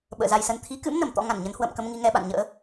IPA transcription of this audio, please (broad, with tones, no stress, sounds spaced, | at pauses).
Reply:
ɓ ə̰ː˧˨ z a˧ j s ə˧ n t̪ʰ i˨˦ k ɨ̰˧˥ m n ə˨˩ m t̪ ɔ̰˧˥ ŋ a˧˩ n ɲ ə˨˦ n h w ə̰ː˧˨ m k ə˧ m ŋ i˧ ŋ ɛ˧ ɓ a̰˧˨ n ɲ ə̰ː˧˥